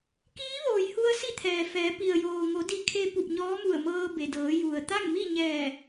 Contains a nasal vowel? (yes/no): no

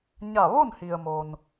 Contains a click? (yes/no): no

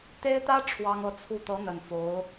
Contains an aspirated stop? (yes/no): yes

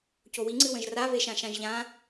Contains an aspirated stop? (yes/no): no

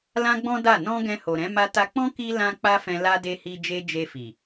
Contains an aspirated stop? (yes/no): no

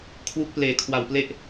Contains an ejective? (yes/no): no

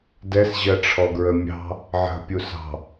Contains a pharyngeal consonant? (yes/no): yes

